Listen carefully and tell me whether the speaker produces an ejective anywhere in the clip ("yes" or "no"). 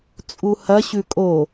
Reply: yes